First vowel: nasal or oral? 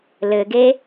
oral